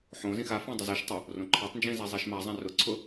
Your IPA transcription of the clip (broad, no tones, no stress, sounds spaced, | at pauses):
ħ õ z ĩ x a f ã dˤ ʊ z i ʃ tˤ o | r õ ǃʰ a tˤ n d͡ʒ ĩ z a zˤ i ʃ m a zˤ ã r ʊ ǀʰ ʊ